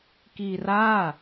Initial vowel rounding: unrounded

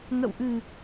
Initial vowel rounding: unrounded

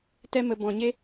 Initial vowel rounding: unrounded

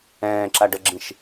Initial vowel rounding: unrounded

